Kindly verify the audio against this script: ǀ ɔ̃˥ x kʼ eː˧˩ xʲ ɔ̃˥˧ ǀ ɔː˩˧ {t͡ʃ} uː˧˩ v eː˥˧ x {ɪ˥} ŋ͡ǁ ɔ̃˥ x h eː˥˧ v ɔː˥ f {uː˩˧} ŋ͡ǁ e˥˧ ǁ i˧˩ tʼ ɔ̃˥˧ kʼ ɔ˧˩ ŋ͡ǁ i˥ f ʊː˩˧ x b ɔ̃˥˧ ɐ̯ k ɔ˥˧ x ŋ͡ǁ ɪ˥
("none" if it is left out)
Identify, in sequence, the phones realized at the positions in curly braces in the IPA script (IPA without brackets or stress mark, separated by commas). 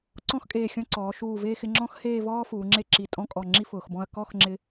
ʃ, ɪ˥˧, uː˩˧